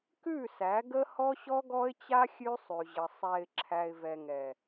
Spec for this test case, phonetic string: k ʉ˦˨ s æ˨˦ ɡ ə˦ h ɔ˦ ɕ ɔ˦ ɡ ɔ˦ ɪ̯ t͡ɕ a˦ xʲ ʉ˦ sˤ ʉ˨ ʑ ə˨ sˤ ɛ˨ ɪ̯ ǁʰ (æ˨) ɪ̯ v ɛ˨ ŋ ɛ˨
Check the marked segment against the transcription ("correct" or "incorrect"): correct